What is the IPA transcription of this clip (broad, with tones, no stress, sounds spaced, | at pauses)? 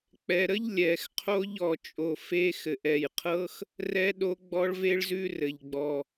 k͡p ɛ˨˩ ɾ ə˦˥ ʎ lʲ ɛ˨˩ x qʰ o˦˥ ʎ ɔ˨˩ t͡ʃʼ o˨˩ f e˦˥ x ɘ˨˩ ʔ ɛ˨˩ j qʰ ɤ˦˥ x | r ɛ˦˥ ɗ o˦˥ ɡ͡b ɔ˦˥ ɭ v e˦˥ ɭ z ʉ˦˥ r ɘ˨˩ ʎ ɡ͡b ɔ˨˩